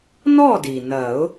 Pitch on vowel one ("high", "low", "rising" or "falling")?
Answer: falling